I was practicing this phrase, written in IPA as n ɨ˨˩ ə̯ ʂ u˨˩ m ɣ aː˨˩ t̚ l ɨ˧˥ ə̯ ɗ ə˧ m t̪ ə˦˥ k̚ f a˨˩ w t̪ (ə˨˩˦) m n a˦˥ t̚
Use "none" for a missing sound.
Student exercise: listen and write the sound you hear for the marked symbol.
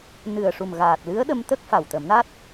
ə˨˩˦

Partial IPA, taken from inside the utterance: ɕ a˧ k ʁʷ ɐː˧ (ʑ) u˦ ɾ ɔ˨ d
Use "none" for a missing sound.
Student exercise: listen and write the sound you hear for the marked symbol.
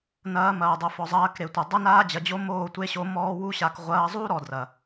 zˤ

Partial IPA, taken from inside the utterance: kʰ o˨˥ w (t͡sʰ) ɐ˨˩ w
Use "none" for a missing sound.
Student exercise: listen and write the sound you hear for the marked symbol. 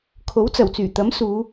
t͡s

